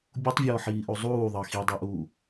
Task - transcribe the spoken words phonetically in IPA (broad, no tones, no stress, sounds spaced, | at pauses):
bʲ u tˤ vʲ ɔː ħ iː ʔ u zˤ uː ðˤ ɑ x i dˤ ɛ ʔ uː